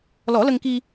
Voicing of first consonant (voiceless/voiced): voiced